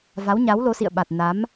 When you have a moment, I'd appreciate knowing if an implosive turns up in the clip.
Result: yes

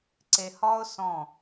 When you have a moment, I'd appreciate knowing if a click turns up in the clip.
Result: yes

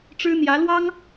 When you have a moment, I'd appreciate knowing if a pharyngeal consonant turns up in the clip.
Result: no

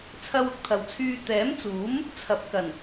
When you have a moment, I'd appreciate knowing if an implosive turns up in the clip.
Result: no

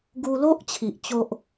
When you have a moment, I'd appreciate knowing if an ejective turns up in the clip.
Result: no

